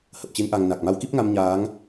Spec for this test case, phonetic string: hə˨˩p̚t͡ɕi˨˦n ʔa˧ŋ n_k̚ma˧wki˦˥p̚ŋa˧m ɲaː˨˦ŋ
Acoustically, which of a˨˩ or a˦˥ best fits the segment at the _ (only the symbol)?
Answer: a˨˩